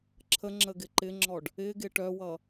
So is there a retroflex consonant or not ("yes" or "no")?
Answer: yes